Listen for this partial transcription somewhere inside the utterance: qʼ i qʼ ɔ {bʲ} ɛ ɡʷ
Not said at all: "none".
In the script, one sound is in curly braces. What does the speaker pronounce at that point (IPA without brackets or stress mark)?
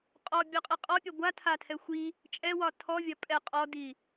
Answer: pʲ